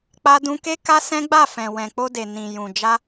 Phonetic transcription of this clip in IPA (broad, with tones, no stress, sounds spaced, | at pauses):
k͡p a˧ d ũ˧ k e˦ k a˦ s ɛ̃˦ ɡ͡b a˦˨ f ɛ̃˨ w ɛ̃˨ k͡p o˧ d e˨ n ĩ˨ j ũ˨ d͡ʒ a˧